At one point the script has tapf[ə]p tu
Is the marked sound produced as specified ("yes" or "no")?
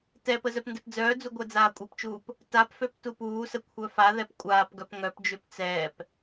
no